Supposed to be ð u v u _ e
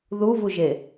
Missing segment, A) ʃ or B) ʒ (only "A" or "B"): B